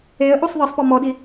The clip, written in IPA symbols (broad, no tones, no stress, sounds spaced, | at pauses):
e ə̯ ʔ u sˤ ð ɤ sˤ p ɔ m ɔ d i